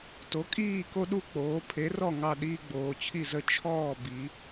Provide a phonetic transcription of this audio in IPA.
to˩˥kʼiː˥˩ ko˦ɗu˥˩k͡poː˩˧ pʰe˩˥rɔ˥˩ ŋɑ˥˩ɗiː˦ ɡ͡boː˩˧t͡ɕʰi˥˩zə˥˩ t͡ʃʰɔː˥˩bi˩˧

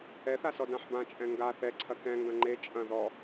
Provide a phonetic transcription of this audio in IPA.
ɛθa sɔdãħbãt͡ʃʼɛ̃ ŋɡa θɛǀʰɐ kɛ̃ŋɡɐ̃ ŋ͡ǃe t͡ʃʼɐ̃ ðɔ

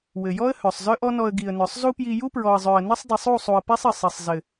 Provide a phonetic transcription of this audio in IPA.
wɘ˨jɔ˦ə̯ hœ˨sˤzœ˦ʔɔ˦nɔ˧ə̯ ɡi˨ə̯nœ˨sˤzu˦pji˧ ju˦pɹɔ˨ə̯zˤœ˨ə̯ nɘ˦sˤdˤi˨sˤ u˦˨sˤu˨ə̯ pi˦sˤɘ˨ sˤɘ˨sˤzɘ˨

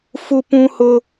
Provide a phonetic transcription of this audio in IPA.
fu˦pũ˦hʊ˦

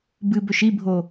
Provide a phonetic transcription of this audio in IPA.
bɨbɵʃ ibʱo

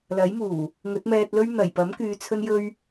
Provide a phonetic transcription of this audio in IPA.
lɐ˨˥jmuː˨˩ | ŋɵ˨˥t̚mɛː˧t̚lɵ˥ɥ n̪ɐ˨˩jpɐ˨˥mkyː˨˧ t͡sʰɵ˥njɵ˥ɥ

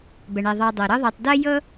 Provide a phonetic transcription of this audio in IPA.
bə˨ɳɛ˨ ðˤɑ˨dˤɤ˩ ɾɤ˦ðˤɜ˨tˤ dɜ˥ jɤ˥

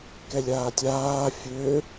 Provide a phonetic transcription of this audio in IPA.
kɛlʲaːtʲaː fʲø

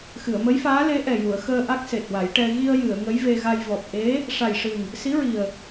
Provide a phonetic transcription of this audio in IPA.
xɨ˨˩˨ə̯mə˧˥jfaː˧˥ le˧˥ʔɛ˨˩ju˨˩˨ə̯xəː˧ ʔa˦˥k̚se˨˩t̚wa˨˩˦jʈɛ˧ ɣi˧ə̯jɨ˨˩˨ə̯ ŋə˧˥jve˧ɣa˧j vɔ˨˩p̚ ʔe˧˥ | ʂa˨˩jʂɨ˨˩ŋ | si˧˥ɹi˨˩ə̯

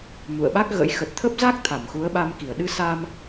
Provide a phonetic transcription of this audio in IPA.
mṵ˧˨ə̯ɓa˦˥k̚ɣə̰˧˥j xə˨˩t̚t̪ʰə˦˥p̚za˦˥k̚ t̪ʰa˧˩mxu˨˦ə̯ɓa˧mki˧˩ə̯ ɗɨ˧sa˧m

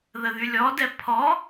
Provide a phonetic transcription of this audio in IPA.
ðəðylʲɔdɛ pʰɔ

